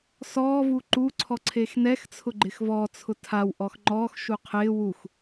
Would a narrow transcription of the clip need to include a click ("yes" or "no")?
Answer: yes